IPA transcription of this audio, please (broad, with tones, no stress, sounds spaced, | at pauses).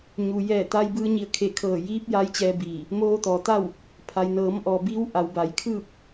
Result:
ɲ u˩ j ɛː˧˩ t̪ a˧ j b ɯː˧ ɲ i˧˩ ə̯ kʰ e˧˩ kʰ ɤː˧˩ j iː˧˥ p̚ j aː˧˥ j t͡ɕ ɛː˧ b iː˧˩ | m oː˧ t̪ ɔː˩ t̪ a˥˨ w | pʰ a˩ j n ɤː˩˧ m ʔ ɔː˩ b iː˧˥ w ʔ a˩˧ w b a˩˧ j kʰ ɯː˥˨ p̚